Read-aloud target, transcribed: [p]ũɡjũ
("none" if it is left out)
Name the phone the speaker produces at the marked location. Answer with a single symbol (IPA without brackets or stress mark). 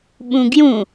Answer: ɓ